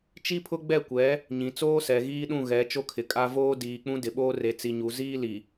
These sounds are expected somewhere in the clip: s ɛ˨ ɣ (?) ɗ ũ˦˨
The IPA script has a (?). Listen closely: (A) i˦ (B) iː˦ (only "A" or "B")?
B